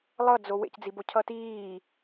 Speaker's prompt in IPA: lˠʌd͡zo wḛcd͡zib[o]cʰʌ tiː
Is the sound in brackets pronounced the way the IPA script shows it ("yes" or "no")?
yes